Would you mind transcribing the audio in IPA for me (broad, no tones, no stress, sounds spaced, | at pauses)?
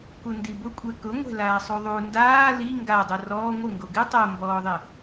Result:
k u n d i b ʊ kʷʼ ɛ k ʊ ŋʷ ɛ̤ l aː sˤ u ðˤ u n d aː l i ŋ ɡ a dˤ o r ɔː ŋʷ ɪ ŋ ɡ o ɡ ɪ tˤ o m b ɔː ðˤ ɪ